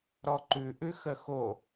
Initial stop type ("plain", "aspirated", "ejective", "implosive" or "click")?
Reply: click